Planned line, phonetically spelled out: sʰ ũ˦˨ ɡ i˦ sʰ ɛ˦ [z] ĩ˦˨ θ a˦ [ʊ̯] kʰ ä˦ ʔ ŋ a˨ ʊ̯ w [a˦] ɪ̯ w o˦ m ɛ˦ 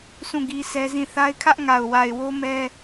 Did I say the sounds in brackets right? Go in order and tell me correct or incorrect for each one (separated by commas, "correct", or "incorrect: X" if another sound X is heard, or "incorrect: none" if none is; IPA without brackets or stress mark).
correct, incorrect: ɪ̯, incorrect: a˨